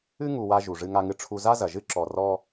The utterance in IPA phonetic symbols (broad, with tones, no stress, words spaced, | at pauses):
ɨ˦ŋu˨ wa˦ ʒu˩ ʐɨ˦ŋa˦ŋɨ˦ ʈ͡ʂʰu˦ za˥zɐ˩ʒɨ˥ǁɔ˨ rɔ˥